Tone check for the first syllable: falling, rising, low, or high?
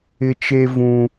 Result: high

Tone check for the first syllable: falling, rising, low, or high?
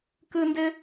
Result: high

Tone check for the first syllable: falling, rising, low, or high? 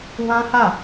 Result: high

